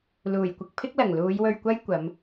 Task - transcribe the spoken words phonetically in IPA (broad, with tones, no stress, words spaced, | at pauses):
luː˨˩jkʷɪ˧k̚pʰɪ˥k̚lɐ˨˩ŋ luː˨˧jwɵ˧ɥkʷɐ˥j kʷɐ˨˧m